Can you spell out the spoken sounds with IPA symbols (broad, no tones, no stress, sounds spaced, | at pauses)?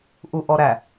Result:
ʔ u ʔ ɔ ɾ æ